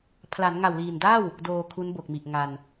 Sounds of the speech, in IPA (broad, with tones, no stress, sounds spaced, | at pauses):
pʰ l a˩˦ n ŋ a˨˩ w l iː˨˩ n d a˥˩ w | d oː˧ kʰ u˦˥ n b o˨˩ k̚ m i˨˩ ʔ ŋ a˧ n